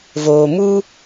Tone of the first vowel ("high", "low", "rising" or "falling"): low